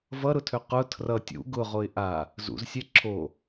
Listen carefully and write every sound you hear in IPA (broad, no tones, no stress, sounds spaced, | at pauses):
v ʌ ɾ ʊ tʰ ø q ʊ tʰ r ʌ tʲ ṵ ɡ ʊ ʁ o ɪ̯ ʔ a | z ṵ z sʲ ɛ ǁʰ o